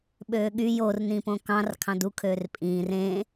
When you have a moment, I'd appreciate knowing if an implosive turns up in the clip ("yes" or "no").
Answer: yes